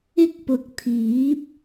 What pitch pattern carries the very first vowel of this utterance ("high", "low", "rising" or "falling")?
high